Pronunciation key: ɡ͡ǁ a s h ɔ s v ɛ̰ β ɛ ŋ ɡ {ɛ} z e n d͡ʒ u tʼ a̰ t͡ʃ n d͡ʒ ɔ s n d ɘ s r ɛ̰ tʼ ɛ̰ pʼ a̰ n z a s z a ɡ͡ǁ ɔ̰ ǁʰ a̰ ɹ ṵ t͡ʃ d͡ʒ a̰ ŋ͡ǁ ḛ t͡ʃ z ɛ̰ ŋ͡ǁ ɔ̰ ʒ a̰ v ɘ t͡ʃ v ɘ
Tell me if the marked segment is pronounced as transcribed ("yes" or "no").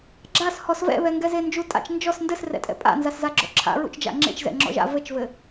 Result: yes